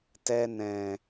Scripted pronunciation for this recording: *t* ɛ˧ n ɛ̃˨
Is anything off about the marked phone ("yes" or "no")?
no